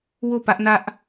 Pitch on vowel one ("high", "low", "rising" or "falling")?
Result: falling